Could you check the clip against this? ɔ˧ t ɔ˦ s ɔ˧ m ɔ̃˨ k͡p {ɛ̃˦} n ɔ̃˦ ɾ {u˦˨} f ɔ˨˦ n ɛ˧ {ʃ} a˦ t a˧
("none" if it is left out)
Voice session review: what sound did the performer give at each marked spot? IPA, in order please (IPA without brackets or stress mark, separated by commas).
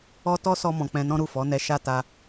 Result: ɛ̃˧, u˦˨, ʃ